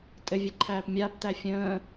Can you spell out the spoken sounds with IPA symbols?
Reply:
tʼ ɘ vʲ ɛ ǃʰ æː p mʲ aː p t æ fʲ ə̃ː

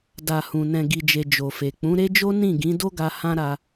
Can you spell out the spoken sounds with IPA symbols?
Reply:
d a˨ h ũ˨ n ɛ̃˨ ɡ i˨ d͡ʒ e˨ d͡ʒ o˨ f e˨ k͡p ũ˨˦ ɾ e˦ d͡ʒ o˦ n ĩ˦˨ ɡ ĩ˨˦ d o˦ ɡ a˧ h ã˦ ɾ a˧

